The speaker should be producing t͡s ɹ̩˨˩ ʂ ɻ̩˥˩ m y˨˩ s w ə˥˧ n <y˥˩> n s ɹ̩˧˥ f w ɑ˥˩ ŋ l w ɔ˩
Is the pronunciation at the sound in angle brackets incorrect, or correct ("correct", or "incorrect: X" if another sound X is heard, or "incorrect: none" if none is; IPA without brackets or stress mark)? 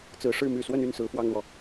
correct